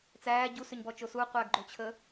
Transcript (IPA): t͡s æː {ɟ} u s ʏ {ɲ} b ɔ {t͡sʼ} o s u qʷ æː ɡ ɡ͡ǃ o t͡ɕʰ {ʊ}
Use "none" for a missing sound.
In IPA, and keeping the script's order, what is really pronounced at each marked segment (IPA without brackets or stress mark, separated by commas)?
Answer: ɟ, ɲ, t͡ʃ, ə